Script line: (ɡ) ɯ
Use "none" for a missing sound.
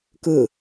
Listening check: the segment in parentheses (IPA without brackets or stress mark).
k